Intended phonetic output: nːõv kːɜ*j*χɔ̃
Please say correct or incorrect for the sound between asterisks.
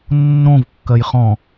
correct